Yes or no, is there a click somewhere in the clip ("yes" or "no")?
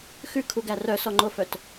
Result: yes